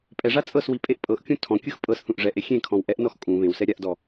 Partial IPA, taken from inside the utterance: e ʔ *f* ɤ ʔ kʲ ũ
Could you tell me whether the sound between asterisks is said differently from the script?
yes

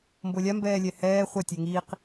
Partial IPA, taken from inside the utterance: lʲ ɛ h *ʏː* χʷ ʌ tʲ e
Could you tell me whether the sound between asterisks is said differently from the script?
yes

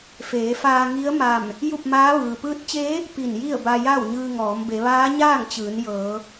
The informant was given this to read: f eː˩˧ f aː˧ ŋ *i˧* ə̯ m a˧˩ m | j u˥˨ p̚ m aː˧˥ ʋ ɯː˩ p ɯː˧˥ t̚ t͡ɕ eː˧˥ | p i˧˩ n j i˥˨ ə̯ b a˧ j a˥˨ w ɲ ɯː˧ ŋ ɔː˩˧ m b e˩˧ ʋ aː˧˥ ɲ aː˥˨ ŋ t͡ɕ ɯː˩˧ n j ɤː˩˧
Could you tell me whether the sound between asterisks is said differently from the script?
yes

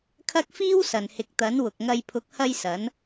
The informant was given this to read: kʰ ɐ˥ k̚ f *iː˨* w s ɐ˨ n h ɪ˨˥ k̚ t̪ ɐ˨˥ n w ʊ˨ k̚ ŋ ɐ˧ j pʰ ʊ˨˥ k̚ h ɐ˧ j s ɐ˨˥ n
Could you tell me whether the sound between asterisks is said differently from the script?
yes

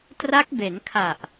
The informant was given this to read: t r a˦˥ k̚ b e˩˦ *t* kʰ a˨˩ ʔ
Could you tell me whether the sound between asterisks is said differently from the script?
yes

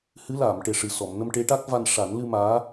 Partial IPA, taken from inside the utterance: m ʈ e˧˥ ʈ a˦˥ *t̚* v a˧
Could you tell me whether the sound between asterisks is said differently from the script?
yes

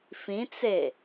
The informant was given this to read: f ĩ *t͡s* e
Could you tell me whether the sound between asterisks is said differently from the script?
no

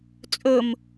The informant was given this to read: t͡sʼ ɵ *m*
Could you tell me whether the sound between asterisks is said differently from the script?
no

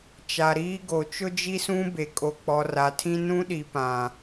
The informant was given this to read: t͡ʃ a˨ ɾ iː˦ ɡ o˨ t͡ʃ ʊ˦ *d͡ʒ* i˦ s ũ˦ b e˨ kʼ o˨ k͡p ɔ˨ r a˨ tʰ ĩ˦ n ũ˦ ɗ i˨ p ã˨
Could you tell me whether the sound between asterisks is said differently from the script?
no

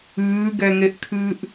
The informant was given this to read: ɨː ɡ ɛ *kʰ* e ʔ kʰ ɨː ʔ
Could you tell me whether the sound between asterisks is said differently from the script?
yes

